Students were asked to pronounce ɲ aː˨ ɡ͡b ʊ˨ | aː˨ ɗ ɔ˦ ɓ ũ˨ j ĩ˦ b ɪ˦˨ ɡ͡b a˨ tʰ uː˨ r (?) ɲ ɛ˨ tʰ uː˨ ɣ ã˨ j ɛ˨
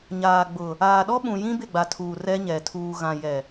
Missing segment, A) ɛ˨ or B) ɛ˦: B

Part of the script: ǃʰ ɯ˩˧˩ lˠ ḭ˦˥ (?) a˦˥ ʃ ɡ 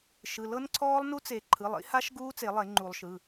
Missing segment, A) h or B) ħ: A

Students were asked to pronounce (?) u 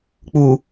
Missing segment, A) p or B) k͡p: B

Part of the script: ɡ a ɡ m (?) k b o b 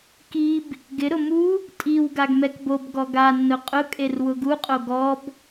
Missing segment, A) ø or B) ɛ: B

